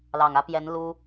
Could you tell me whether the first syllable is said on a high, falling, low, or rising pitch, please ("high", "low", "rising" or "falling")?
low